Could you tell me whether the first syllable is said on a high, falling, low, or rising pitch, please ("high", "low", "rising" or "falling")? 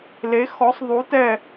rising